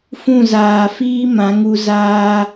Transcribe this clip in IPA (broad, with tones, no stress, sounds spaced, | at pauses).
f ũ˦˨ z aː˨ f iː˦ m ã˨˦ ŋ u˧ z aː˧